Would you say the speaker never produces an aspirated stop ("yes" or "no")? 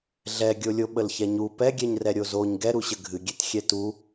yes